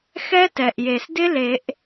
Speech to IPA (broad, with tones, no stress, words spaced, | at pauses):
xɛ˦˥tɛ˩ʔje˩sdɪ˦˥ le˨˩˦ʔ